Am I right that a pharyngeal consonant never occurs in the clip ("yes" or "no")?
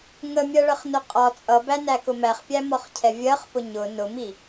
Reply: yes